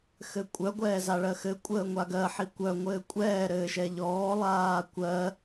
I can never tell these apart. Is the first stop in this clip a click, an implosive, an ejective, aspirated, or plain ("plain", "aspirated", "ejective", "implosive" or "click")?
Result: ejective